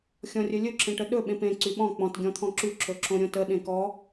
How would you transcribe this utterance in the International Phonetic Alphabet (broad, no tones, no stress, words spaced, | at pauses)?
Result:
xʲɔ̃rʲɵlʲɵ ǁẽʈəɗɵ ɓẽpẽ ǀyɓɔ̃ k͡pɔ̃t ɡʲɔ̃t̪ʰɔ̃ǁy ǁɵǁõɾʲõtə ɗẽkɔ